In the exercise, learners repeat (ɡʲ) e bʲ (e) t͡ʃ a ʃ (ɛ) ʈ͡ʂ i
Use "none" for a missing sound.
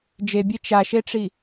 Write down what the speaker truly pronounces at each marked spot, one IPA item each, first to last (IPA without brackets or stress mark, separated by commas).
d͡ʒ, e, e